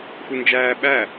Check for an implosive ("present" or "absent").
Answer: present